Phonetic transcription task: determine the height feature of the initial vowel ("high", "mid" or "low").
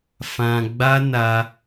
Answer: low